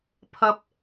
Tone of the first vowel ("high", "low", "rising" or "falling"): high